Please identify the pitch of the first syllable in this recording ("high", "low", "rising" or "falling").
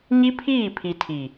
high